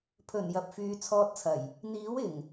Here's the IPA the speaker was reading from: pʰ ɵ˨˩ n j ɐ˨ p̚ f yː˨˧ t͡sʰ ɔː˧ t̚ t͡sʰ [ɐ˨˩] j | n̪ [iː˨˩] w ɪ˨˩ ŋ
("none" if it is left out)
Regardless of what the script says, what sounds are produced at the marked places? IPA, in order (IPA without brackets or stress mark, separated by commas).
ɐ˨˩, iː˨˥